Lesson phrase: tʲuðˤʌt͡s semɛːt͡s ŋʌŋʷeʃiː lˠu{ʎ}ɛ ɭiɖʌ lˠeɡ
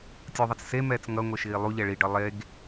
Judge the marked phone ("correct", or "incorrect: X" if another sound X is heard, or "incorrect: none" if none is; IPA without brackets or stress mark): correct